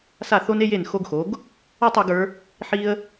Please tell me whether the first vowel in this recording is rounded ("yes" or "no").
no